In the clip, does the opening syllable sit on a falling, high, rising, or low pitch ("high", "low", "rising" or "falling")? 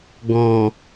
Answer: low